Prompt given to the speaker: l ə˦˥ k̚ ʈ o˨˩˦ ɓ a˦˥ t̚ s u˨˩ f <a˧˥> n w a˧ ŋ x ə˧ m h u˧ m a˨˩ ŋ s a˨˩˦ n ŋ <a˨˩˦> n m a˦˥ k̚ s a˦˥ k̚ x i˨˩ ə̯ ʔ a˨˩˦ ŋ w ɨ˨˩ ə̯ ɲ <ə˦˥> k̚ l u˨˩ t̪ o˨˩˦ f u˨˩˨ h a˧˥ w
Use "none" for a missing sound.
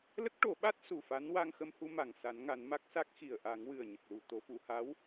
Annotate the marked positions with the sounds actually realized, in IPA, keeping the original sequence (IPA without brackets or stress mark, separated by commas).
a˧˥, a˨˩˦, ə˨˩